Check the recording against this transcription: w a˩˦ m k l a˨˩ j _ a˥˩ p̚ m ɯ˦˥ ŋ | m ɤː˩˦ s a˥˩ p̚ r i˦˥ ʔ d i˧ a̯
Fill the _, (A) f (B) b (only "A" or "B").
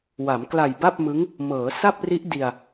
B